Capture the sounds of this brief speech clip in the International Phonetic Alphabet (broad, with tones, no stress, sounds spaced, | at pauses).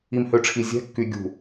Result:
i˨ m h ø˨ ʈ͡ʂʰ i˨ zʲ ɛ̤˦˨ kː y˨ ɡʲ ṳ˨